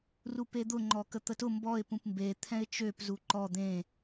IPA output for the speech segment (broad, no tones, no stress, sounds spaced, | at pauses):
r u p e d̪ ʊ ŋ͡ǃ ɔ k ə t̪ ə t ʊ m b ɔ ɪ̯ p ũ p m b e t̪ʰ ɛ̃ ɪ̯ t͡ʃ ø p z u ǃ ɔ d̪ ẽ